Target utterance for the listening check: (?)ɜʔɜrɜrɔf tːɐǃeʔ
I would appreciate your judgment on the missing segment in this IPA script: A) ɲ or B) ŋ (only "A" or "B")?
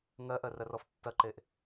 B